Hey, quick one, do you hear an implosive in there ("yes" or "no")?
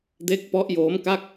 no